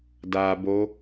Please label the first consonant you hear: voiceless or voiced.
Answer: voiced